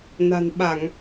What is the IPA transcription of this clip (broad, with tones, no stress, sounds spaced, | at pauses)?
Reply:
n a̤˨˩ n ɓ a˧˩˨ ŋ